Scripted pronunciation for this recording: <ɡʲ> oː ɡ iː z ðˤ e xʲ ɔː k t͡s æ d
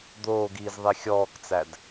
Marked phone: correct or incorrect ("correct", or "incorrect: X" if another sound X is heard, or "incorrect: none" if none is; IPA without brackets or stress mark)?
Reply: incorrect: d̪